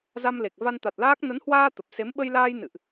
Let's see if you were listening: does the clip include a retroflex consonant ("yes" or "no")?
no